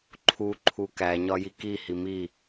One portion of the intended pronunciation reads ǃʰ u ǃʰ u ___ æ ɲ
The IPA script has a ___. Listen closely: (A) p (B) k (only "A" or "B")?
B